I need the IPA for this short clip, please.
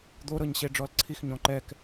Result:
d̪o ɾɤɲɕeɖ͡ʐɔlǀʰix ɲɔ̃ǃɛk

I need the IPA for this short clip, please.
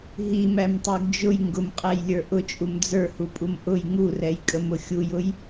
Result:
ɦimæmtˤə˞ɡ d͡ʒʊj ŋɡʊmqʼæjlʲə˞ ʔʊt͡ʃʼum d͡zə˞hupʼum ʔʊj ŋurɛjkʼəmʊ xʲujʊj

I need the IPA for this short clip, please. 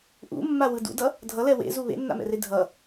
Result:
ʔṵmːawɯ dṵdʌ | dʱʌlɛ wḛzu βḛnːa̰mɛ̰re dʱʌ

